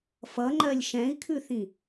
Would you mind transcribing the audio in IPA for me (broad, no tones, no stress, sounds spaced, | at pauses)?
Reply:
f ʌ ŋ͡ǃ ɜ lʲ ʃ ɛ̃ i̯ kʰ ʉ θ ĩ